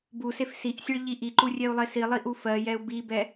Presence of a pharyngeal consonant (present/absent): absent